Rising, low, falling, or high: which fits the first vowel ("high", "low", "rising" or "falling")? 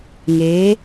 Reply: rising